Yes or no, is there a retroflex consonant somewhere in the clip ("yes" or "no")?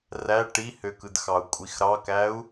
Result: yes